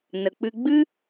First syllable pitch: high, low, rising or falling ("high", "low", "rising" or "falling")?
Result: low